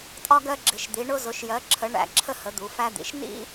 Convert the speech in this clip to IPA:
tʼɒ˧ɡɜ˧ ɡ͡ǁɪ˩˧ʃd̪i˩˧ɳʊ˧ zʊ˩˧ʃjɜ˩˧ǁʰə˩˧ ɳæ̰˩˧ǁʰə˧hə˩˧ d̪u˩˧fæ˧d̪ḭ˩˧ʃ nḭ˧

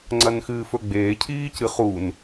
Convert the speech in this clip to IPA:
ŋ͡ǀɐnxɨːfɵɡ͡beː cʰiːcɨχun

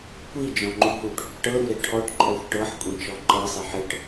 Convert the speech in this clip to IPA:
kʷid͡ʒɔ̃ŋ͡ǃu ɦuʈ | ʈɤɾuɾe ʈʰɔʈǃʼɔxʷ ʈɤħkʷʼẽt͡ʃɔ ǃɤsˤiħ ɘʈ

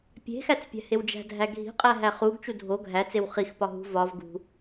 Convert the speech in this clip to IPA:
pʲe̤xæt͡s pʲæ̤hewd͡ʒæ̤dʱæ ɡʱi̤qʼæ ɦæχuɡt͡ʃu dʱo ɡʱæt͡sew χixpɒ ɦṳ vɒv ɡṳ

